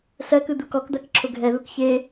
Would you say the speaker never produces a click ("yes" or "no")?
no